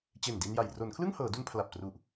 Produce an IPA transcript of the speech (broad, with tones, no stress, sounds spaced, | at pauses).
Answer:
t͡ɕ e˨˩ n d i˧ n j a˨˩ j r o˩˦ n kʰ l ɯ˥˩ ŋ h ɤː˩˦ d u˧ n pʰ l a˨˩ p̚ t r u˨˩ ʔ